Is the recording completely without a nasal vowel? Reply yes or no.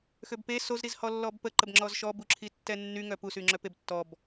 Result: yes